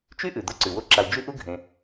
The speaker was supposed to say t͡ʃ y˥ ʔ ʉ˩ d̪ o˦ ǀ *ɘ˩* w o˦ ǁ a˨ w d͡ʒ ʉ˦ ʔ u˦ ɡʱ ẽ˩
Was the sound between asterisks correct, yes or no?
no